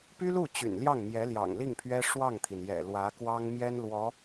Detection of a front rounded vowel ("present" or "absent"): present